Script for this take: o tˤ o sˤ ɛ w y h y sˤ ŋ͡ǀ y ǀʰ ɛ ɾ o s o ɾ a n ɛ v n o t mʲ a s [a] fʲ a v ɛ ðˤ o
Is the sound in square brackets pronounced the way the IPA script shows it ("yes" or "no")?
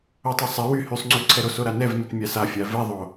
yes